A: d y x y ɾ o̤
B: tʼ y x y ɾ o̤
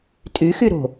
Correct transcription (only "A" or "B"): B